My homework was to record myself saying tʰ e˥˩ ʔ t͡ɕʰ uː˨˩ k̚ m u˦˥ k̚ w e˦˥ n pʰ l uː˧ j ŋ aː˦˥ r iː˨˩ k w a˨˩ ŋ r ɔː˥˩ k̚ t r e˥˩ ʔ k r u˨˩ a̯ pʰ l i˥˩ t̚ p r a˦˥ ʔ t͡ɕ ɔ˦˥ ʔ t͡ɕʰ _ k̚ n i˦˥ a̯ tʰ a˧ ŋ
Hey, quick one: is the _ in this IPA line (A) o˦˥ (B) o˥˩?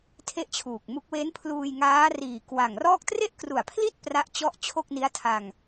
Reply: B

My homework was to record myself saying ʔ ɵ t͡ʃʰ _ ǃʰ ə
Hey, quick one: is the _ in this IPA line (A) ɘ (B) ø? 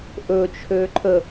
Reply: B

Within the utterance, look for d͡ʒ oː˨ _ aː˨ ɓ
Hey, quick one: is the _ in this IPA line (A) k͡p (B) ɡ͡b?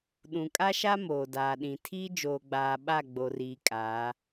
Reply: B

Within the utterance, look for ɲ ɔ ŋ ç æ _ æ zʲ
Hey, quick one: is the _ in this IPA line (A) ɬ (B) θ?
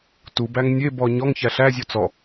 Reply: A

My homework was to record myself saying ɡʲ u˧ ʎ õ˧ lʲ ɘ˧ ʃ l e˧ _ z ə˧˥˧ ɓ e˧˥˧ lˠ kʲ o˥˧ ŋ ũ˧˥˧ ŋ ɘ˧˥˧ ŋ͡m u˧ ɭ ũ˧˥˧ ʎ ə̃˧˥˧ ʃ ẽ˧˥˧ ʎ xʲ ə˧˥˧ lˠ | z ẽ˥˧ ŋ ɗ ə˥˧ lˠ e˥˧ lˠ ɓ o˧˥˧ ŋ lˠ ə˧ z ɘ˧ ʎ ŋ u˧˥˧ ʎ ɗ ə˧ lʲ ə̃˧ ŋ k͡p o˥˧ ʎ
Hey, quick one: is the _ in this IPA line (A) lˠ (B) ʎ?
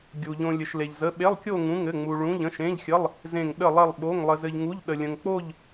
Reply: B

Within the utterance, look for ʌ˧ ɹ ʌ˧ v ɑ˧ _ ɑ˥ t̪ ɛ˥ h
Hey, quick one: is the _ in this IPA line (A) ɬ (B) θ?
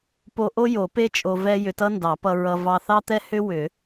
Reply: B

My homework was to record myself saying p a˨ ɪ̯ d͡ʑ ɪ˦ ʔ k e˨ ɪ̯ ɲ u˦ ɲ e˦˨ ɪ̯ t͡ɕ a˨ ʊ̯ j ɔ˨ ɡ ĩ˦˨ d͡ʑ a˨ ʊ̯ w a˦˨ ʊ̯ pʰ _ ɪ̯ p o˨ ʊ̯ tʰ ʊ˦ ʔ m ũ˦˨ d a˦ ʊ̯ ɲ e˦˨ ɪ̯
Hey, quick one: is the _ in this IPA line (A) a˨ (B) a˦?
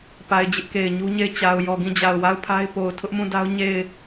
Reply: B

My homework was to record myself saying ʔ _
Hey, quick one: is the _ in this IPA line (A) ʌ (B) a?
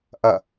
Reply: A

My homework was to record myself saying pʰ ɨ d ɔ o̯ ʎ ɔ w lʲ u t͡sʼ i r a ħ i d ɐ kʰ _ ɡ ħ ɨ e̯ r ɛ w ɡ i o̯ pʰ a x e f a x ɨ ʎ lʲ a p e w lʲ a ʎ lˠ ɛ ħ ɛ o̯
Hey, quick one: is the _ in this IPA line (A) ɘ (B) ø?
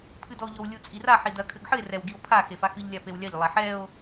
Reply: A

